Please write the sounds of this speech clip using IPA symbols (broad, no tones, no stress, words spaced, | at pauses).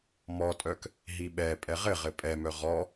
mɔtʼœk | ɦiɓɛ pʼɛʁɘʁɘ pʼɛmœ ʁɔ